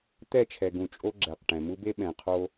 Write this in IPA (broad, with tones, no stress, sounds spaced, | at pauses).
t̪ ɛ˦˨ t͡ʃʰ ɛ˨ ɡ ũ˨ t͡ʃʼ o˦ ɡ͡ǁ ɛ˨ q ʈ ɛ̃˨ m u˦ b e˦ ɓ ɛ̃˨ qʰ o˦